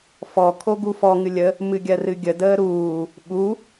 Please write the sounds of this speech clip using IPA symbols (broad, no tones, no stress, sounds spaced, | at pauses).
f ɔ kʰ o ɡ u f ɔ ŋ ɨ lʲ ə | m ɨ ɡʲ ɜ r ɨ ɡʲ ə d əː ɾ uː | ɓ u